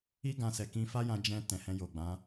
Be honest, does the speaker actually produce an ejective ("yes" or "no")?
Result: no